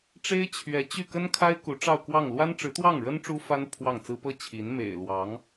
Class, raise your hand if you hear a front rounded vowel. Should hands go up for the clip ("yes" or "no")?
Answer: yes